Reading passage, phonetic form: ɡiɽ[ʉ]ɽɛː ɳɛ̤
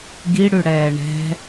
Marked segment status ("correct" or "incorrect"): correct